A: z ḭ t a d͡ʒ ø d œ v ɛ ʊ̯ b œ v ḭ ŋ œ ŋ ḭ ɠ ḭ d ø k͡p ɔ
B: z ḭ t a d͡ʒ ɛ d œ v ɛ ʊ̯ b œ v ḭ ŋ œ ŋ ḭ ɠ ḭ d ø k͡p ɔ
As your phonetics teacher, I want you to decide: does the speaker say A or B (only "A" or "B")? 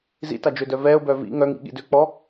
A